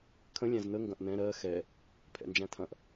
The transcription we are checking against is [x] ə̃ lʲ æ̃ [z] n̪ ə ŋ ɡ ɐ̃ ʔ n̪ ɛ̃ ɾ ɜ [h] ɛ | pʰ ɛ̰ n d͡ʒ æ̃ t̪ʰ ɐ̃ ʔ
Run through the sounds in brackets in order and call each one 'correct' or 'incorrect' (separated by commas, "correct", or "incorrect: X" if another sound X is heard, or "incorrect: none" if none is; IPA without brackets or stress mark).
incorrect: kʰ, correct, incorrect: x